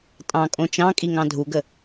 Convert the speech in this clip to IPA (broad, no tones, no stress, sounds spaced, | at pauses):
tʼ ɑ̃ kʼ õ t͡ʃ ɑ̃ kʼ i ŋ ɑ̃ dʱ u ɡ ə